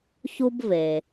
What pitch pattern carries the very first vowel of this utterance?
high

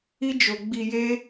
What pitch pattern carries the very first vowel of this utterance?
high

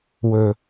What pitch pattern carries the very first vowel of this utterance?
low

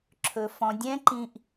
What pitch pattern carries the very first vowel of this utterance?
low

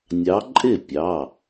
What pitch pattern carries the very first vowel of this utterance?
rising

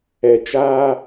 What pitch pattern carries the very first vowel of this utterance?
low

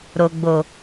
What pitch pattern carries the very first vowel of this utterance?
low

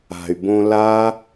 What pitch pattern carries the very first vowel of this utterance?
low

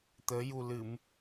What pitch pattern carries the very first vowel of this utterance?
rising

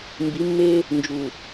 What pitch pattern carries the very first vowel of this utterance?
rising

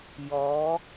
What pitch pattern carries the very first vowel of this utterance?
rising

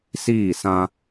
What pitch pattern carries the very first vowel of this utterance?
falling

